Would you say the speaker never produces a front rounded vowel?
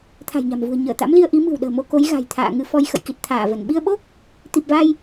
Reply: yes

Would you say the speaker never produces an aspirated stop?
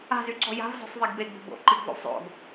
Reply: yes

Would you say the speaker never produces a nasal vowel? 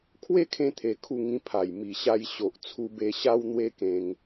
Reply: no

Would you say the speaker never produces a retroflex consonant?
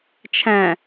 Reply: yes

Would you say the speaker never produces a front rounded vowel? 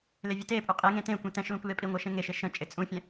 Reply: yes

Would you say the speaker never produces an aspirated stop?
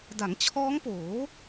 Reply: no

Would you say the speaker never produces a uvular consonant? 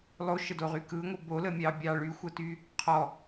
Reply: no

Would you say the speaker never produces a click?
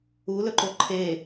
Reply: no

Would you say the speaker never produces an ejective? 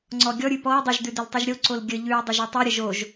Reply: yes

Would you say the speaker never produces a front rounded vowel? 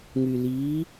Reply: no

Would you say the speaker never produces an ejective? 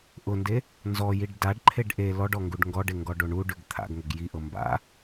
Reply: yes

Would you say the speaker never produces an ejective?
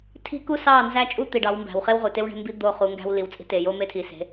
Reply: no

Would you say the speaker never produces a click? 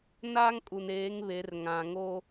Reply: yes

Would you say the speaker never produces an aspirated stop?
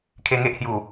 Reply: no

